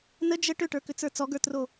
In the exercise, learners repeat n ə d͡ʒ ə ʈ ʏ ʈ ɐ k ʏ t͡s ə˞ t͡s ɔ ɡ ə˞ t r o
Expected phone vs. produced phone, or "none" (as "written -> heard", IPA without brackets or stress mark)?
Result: ɐ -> ə˞